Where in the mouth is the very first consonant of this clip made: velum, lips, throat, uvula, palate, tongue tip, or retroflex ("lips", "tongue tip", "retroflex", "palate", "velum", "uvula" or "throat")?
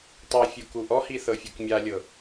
tongue tip